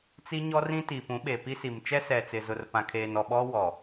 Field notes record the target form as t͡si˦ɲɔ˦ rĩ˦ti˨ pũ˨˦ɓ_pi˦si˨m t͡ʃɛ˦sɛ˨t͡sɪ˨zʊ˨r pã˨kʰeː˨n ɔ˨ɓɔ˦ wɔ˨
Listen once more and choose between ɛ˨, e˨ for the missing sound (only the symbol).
e˨